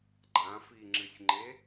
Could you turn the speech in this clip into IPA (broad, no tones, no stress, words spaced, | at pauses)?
ɡ͡ǃãfiŋ͡ǁɨsʲŋ͡ǃe